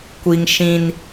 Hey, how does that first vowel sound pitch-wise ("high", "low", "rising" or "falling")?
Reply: high